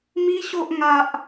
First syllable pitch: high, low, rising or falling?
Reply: high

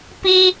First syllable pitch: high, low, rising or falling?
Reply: high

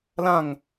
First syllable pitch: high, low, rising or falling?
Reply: falling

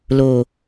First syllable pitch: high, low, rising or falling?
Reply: low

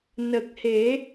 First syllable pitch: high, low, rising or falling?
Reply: low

